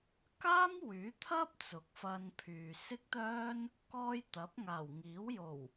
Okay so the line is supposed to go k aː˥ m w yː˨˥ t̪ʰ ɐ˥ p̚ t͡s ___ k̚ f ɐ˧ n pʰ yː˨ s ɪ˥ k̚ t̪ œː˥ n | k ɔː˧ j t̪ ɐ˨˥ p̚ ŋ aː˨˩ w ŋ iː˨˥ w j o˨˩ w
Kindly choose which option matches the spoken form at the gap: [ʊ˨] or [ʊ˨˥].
ʊ˨˥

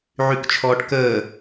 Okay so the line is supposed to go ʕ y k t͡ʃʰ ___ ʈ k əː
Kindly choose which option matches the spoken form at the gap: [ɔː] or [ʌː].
ɔː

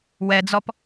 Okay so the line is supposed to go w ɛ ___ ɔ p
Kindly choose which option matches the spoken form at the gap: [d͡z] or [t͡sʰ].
d͡z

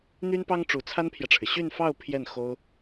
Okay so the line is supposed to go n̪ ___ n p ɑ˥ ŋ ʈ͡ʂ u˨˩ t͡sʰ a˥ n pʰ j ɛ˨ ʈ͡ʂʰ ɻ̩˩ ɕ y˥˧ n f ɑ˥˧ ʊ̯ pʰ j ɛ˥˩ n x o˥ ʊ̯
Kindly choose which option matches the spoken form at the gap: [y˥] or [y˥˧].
y˥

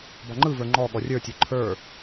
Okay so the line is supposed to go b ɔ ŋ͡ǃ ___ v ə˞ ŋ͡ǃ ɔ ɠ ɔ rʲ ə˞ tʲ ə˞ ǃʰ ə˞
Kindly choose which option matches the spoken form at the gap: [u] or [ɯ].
ɯ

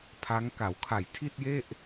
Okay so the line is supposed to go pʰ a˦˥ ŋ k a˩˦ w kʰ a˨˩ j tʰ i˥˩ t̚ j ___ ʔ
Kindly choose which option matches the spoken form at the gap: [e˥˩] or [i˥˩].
e˥˩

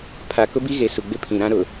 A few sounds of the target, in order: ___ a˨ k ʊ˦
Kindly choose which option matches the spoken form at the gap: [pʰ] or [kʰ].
pʰ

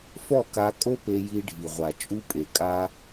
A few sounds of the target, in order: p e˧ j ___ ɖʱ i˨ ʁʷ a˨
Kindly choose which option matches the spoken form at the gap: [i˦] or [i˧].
i˧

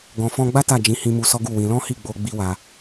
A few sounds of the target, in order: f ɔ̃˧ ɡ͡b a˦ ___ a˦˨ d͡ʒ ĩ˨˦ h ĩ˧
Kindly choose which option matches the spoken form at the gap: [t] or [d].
t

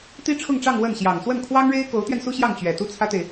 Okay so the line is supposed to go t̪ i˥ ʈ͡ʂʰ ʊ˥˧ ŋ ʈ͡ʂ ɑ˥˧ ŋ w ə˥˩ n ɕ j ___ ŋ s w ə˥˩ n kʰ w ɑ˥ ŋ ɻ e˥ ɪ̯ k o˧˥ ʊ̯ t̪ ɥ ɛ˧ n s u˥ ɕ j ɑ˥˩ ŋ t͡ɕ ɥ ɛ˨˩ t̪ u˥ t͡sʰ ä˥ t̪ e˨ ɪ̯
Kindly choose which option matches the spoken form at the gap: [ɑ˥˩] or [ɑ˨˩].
ɑ˨˩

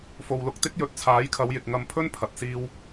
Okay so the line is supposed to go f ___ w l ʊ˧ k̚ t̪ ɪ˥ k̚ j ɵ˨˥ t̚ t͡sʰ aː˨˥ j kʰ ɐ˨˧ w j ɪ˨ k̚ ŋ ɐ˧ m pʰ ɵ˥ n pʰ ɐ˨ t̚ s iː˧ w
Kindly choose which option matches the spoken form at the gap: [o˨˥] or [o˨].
o˨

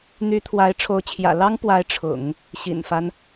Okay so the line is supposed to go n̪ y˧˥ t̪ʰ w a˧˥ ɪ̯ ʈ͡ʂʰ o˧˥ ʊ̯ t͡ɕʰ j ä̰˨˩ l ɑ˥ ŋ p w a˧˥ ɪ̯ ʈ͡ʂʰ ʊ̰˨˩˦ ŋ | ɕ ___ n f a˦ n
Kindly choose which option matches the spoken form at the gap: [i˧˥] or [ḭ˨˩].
ḭ˨˩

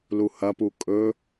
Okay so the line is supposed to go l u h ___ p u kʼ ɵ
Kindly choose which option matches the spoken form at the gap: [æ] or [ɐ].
ɐ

